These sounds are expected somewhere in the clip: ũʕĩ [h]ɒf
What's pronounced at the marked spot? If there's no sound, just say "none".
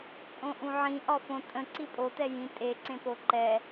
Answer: ʔ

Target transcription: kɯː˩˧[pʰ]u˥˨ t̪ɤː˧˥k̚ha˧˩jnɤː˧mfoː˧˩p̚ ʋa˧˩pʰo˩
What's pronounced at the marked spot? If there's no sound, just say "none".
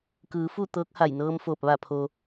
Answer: f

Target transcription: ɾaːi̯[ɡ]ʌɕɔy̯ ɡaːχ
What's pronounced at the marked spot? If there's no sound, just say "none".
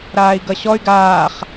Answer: ɡ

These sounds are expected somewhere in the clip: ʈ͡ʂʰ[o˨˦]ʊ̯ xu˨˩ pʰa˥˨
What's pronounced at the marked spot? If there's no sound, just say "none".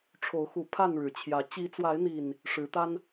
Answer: o˨˦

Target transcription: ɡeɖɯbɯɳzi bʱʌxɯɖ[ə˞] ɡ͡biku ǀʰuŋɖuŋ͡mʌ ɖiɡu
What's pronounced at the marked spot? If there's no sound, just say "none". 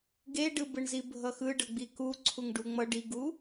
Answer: ʌ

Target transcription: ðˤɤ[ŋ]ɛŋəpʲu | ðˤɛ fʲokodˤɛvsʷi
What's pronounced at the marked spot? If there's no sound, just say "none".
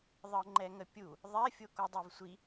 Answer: ŋ͡ǃ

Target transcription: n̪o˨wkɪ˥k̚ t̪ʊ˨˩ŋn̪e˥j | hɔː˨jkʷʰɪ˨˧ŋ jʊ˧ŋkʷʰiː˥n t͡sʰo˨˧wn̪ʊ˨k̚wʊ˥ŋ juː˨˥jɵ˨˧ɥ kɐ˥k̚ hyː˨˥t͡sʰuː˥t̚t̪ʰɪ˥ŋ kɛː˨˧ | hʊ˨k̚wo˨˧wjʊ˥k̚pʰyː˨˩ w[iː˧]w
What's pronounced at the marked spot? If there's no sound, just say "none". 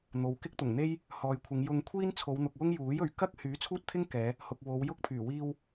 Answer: iː˧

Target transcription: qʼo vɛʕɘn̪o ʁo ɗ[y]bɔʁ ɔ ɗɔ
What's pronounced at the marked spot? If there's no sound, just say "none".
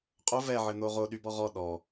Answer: y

